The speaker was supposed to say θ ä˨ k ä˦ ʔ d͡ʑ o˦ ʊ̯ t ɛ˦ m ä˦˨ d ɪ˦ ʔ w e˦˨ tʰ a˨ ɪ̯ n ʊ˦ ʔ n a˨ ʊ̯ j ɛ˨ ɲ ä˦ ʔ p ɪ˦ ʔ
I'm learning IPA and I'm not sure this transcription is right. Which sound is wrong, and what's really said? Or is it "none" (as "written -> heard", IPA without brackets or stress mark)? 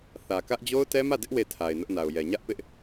none